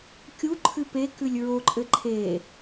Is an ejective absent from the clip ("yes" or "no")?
no